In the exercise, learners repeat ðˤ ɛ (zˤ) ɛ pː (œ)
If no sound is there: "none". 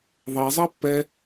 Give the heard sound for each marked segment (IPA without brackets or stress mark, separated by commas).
zˤ, ɛ